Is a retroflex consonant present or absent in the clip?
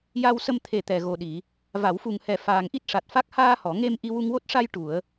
present